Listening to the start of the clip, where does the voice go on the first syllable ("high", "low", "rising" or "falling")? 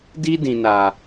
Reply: high